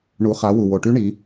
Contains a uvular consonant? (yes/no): yes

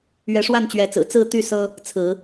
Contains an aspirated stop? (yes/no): yes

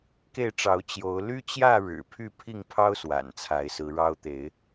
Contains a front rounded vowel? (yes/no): yes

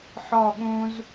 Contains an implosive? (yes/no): yes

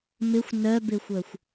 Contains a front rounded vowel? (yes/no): yes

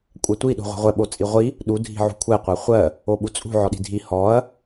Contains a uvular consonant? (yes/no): yes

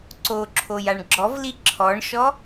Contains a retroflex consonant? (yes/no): yes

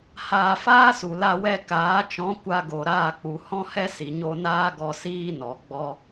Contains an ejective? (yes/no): no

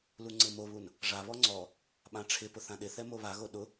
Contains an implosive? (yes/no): yes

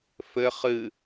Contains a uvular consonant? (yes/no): yes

